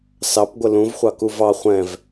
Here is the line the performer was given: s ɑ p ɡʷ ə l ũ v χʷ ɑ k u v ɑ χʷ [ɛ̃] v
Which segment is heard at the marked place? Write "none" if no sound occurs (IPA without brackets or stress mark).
ɛ̃